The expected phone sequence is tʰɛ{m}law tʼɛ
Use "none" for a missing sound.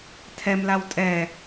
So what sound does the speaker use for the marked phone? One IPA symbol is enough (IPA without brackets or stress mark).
m